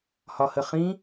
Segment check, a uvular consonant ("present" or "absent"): present